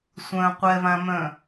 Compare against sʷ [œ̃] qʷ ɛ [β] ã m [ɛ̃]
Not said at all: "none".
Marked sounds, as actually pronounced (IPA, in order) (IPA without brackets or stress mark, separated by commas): œ̃, β, œ̃